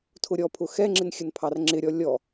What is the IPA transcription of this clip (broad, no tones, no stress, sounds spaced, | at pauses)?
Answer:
tʰ ʊ ɾʲ ɔ pʰ ʊ x ɛ ŋ͡ǁ ɪ n xʲ ə n pʰ ɑ r ŋ͡ǁ ɪ ɾʲ ɔ lʲ ɔ